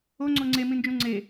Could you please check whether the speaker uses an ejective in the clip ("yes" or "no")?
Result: no